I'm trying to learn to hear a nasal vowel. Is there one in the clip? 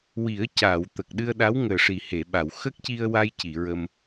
no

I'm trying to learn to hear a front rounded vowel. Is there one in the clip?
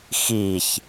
no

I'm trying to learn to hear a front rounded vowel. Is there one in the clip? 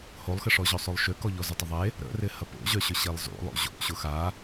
yes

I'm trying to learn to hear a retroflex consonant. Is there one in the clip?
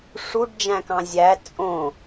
yes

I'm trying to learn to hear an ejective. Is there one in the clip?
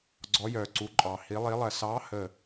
yes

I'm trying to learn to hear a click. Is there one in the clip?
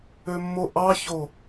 no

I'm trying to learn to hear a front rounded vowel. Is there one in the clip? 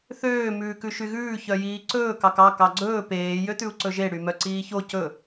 yes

